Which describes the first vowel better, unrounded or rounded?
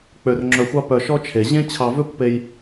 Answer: rounded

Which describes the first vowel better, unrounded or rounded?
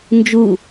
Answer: rounded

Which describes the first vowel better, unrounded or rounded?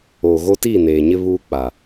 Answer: rounded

